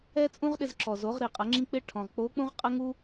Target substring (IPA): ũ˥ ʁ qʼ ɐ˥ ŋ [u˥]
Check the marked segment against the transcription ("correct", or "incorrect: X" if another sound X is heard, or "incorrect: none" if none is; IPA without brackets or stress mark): correct